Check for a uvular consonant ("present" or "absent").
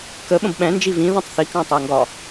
absent